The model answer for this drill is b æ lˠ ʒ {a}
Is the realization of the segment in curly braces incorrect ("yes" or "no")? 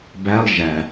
yes